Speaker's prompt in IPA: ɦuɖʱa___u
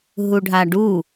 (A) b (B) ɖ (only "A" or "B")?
B